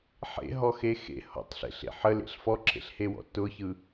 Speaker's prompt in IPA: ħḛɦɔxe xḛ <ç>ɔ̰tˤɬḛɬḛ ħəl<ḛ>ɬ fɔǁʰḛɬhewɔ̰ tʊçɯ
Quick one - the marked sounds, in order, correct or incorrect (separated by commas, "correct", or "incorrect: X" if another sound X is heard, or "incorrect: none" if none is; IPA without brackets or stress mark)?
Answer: incorrect: h, correct